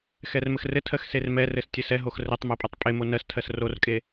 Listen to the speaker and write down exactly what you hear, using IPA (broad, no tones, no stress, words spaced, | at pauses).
xɛrmɘxrɘtʰɜx sermɛrɘs tʲɘsɛɦox rɘtˤmo pʼɛtˤpʼemo nɜstʰɜs rorkʼe